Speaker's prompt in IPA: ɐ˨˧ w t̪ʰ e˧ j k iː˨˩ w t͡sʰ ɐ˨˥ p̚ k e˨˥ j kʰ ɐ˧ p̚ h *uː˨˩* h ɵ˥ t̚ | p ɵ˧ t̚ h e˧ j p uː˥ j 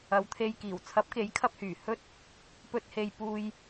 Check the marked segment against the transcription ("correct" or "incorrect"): incorrect